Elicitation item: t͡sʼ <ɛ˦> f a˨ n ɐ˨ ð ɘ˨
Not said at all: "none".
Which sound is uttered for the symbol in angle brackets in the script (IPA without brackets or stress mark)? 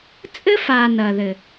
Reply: ɘ˦